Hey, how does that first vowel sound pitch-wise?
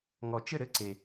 low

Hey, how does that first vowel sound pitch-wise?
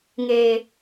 low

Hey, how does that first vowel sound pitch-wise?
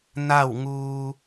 falling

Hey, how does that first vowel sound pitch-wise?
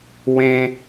high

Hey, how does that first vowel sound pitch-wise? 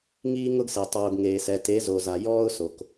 high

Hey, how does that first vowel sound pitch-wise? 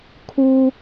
high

